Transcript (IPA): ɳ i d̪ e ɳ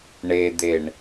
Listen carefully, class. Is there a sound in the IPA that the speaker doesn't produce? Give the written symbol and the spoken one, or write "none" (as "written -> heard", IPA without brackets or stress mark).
i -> e